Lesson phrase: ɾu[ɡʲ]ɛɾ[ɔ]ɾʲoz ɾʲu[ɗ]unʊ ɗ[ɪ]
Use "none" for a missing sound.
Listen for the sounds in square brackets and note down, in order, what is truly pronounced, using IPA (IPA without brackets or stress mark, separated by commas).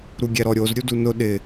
ɡʲ, ɔ, d, ɪ